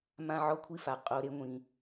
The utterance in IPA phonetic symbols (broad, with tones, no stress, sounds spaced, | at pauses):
m ã˦ ʕ ɔ˦ kʷʰ i˦ f a˨ qʼ o˨ ɾ e˦ ŋʷ ĩ˨